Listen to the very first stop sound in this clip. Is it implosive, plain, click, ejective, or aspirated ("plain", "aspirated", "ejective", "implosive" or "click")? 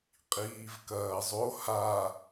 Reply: ejective